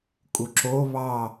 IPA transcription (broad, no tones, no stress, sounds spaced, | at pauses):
kʼ u ǁ o β ɑ